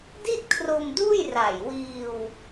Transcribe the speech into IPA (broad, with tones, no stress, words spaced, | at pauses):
di˥˩t̚kʰro˧mduː˥˩jra˨˩j wiː˧w